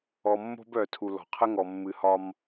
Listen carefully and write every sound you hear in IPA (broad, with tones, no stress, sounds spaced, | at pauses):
ɔ˨ mː o̤˦ b œ˨ tʰ u˨ l ɔ̤˨ qʰ ə˦ ŋ ɔ˨ mː ɨ˨ h ɒ˦ m